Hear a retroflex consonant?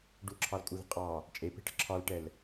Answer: yes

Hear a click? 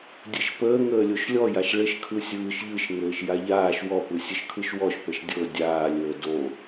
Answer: no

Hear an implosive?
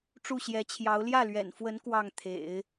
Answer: no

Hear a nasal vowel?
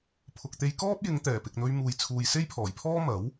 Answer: no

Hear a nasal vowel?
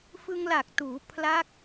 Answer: no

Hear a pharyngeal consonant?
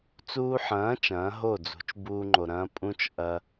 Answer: yes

